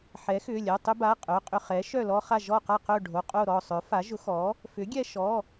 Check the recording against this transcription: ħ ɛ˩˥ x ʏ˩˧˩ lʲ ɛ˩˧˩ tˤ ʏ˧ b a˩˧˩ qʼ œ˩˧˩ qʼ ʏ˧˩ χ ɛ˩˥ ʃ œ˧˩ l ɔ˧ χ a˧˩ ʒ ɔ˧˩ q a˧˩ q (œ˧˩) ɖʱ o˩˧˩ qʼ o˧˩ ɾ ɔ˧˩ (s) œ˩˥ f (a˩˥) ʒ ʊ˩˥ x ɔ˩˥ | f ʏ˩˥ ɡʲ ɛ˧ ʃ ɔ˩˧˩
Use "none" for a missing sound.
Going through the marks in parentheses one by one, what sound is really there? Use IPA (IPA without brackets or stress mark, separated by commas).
œ˧˩, sˤ, a˩˥